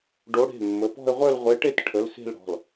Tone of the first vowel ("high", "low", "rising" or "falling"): rising